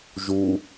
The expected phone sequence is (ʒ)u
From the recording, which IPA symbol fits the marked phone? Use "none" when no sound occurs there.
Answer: ʒ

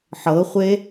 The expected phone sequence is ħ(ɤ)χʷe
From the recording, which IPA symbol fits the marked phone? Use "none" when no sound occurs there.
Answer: ɤ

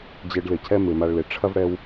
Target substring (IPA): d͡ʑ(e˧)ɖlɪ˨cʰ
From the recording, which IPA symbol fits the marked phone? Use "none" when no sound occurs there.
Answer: e˧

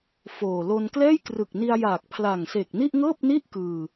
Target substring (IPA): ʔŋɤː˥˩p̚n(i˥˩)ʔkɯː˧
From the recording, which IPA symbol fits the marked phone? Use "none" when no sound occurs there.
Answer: i˥˩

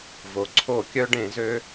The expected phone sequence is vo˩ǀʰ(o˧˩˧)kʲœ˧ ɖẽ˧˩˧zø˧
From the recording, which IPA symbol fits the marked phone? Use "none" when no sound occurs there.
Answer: o˧˩˧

